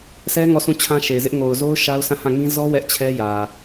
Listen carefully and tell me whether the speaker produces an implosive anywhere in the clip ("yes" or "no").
no